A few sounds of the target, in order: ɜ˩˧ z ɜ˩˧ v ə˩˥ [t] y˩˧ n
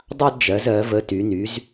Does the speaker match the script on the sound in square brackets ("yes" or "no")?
yes